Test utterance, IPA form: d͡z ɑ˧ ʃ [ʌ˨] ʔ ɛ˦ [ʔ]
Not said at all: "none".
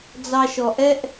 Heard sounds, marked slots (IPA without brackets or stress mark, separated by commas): ɔ˨, ʔ